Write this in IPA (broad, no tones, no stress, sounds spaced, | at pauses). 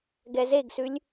ɡ ɛ z e ɡ s ʉ lʲ